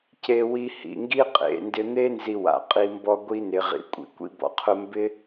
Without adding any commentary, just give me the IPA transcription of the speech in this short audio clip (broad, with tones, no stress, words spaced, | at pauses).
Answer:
ce˧wi˧ hḭ˨ ŋɡi˦qʼḛ˨ndɪ˧ n̪e˦ nzi˧wa̰˨qʼi˧ mbɔ˧ɡʷi˧ nɪː˨ʁḭ˨˦kʷʼḭ˨ kʷḭ˧bɔ̰˨qʰʊ˧ mbɪ˦